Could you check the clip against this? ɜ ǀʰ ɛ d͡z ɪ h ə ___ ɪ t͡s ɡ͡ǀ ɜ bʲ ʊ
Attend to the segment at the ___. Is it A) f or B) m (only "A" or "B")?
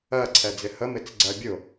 B